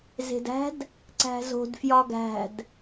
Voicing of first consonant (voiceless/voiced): voiced